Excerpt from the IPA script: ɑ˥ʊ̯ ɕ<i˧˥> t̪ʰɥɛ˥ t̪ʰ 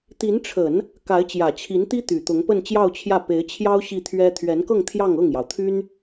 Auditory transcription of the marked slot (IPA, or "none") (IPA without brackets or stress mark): i˥˩